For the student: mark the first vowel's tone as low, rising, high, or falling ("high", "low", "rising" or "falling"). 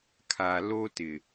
low